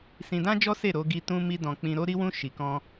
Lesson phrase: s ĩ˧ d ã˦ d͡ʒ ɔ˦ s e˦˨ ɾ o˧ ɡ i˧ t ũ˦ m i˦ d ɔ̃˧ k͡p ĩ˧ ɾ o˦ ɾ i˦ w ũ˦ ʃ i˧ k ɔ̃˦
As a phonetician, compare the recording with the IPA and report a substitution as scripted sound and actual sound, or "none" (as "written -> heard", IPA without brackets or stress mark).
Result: none